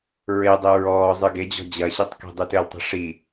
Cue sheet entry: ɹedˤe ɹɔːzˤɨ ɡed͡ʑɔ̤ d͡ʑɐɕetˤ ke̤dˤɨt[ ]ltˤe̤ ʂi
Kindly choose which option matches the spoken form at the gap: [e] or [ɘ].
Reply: ɘ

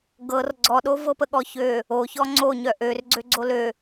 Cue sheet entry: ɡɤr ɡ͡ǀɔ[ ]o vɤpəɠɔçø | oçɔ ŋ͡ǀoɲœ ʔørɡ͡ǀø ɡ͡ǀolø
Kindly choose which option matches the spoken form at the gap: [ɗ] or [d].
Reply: ɗ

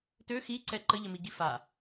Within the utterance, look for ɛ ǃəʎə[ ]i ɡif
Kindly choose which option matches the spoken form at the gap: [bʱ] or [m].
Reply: m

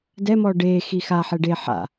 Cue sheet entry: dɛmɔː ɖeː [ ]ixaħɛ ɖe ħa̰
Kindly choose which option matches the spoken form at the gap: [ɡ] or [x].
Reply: x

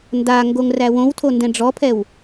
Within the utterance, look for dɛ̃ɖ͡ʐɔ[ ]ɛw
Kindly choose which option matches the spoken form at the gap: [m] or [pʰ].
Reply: pʰ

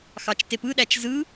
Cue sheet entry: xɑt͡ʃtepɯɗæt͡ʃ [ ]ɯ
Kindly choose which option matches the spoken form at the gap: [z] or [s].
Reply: z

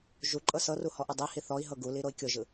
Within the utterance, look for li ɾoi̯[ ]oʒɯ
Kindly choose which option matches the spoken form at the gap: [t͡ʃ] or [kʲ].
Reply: kʲ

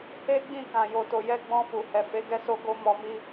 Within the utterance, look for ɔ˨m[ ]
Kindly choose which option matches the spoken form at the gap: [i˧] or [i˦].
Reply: i˧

